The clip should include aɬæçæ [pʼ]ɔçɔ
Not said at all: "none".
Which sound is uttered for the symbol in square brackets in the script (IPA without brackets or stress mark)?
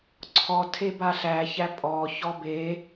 pʼ